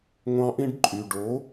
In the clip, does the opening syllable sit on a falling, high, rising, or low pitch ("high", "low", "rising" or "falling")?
high